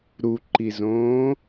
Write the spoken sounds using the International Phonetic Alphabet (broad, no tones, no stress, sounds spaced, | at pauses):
ɾ u ǃ i z õː